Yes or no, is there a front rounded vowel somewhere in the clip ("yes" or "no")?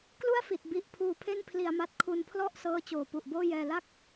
no